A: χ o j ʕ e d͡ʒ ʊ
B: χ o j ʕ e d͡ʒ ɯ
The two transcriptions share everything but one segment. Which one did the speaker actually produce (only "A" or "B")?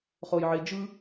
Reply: B